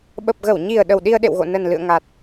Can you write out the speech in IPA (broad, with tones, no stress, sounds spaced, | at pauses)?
ɓ ə˨˩ p̚ ɣ ə˧˩ w ɲ i˨˩ ə̯ ɗ ə˨˩ w ɗ i˧ ə̯ ɗ ḛ˧˨ w ɣ o̰˧˨ n ə˨˩ n l ɨ̰˧˨ ə̯ ŋ a˨˩ t̚